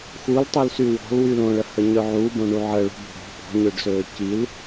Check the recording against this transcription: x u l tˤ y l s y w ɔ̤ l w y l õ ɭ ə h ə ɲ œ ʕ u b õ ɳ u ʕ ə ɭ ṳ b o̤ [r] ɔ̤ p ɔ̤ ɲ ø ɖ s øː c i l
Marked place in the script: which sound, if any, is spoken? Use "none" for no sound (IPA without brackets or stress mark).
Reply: ɽ